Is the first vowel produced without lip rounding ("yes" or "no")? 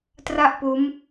yes